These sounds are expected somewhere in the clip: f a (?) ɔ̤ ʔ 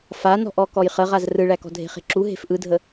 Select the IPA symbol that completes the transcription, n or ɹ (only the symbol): n